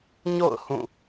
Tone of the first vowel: falling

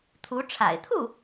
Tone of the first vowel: rising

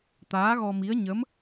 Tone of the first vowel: rising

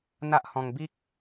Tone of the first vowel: high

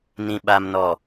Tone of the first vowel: low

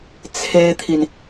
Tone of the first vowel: high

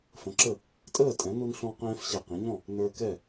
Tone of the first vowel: rising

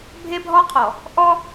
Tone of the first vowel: high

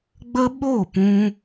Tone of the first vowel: high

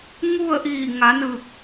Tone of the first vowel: falling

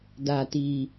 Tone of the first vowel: low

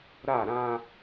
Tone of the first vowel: falling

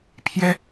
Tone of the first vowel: high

